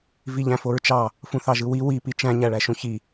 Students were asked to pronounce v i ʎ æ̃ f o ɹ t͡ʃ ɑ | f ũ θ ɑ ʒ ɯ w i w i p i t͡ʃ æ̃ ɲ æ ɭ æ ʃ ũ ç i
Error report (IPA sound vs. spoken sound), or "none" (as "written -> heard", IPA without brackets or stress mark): none